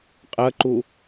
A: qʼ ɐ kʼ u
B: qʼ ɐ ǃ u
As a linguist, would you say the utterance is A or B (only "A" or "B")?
B